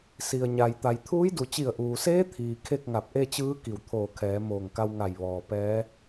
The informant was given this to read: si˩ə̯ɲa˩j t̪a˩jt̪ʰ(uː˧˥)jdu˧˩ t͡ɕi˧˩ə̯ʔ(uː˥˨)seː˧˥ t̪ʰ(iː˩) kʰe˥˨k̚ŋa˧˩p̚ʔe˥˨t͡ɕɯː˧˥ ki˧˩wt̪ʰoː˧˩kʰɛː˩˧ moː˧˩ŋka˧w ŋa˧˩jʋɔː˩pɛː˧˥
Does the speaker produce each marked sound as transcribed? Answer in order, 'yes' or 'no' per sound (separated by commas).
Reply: yes, no, yes